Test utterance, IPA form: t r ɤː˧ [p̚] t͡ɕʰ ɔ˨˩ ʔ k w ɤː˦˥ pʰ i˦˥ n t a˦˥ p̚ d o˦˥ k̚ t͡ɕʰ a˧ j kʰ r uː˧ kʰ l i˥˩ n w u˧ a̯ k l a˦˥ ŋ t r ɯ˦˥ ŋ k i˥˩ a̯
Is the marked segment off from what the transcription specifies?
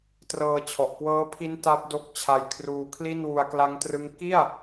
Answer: yes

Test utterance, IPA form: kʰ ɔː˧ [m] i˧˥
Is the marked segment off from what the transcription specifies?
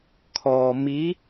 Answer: no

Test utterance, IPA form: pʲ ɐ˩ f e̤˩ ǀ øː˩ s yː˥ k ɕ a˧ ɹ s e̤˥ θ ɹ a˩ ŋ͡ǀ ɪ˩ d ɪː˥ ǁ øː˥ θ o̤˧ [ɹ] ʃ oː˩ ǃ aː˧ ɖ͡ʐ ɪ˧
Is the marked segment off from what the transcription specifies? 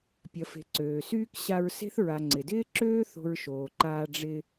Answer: no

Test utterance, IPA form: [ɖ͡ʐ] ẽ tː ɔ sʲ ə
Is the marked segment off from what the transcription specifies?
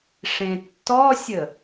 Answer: yes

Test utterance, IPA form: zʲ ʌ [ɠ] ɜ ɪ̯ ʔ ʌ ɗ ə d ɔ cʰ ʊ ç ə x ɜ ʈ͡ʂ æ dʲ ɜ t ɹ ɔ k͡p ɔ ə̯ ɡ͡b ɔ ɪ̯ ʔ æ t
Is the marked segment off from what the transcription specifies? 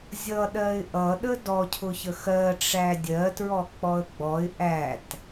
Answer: yes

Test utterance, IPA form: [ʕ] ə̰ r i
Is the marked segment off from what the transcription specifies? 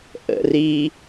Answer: yes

